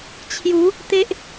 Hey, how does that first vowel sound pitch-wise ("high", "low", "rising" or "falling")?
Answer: rising